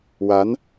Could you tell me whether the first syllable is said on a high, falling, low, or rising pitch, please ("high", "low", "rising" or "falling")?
rising